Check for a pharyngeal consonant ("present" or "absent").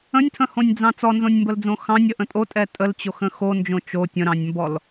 absent